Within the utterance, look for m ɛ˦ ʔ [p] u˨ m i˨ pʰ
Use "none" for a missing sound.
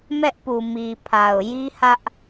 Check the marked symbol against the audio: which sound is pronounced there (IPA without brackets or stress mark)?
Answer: p